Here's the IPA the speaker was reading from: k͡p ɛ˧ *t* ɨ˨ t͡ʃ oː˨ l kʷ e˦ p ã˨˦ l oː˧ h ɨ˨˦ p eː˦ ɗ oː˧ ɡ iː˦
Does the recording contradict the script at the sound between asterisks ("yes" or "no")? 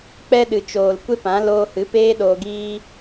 yes